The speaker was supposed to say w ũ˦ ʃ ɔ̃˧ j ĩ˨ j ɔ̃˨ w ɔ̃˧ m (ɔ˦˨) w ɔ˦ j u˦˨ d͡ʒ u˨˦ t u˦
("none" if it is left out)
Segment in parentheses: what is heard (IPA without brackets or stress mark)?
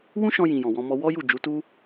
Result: ɔ˦